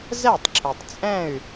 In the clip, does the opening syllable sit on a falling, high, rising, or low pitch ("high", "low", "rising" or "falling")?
falling